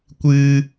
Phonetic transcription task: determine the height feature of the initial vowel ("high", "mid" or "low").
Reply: high